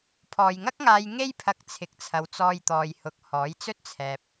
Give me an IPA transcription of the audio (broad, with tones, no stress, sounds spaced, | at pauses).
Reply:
pʰ ɔː˨ j ŋ ɐ˥ k̚ ŋ aː˧ j ŋ e˥ j pʰ ɐ˧ k̚ t͡sʰ ɪ˨˥ k̚ t͡sʰ ɐ˨˧ w t͡s ɔː˧ j t̪ ɔː˨ j h ʊ˨ k̚ h ɔː˨˥ j t͡s ɵ˥ t̚ t͡sʰ ɛː˨ p̚